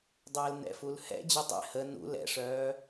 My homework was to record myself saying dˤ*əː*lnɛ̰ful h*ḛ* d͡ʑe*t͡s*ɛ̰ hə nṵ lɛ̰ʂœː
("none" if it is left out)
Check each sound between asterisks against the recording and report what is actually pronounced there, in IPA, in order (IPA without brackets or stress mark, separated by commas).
əː, ɛ̰, tˤ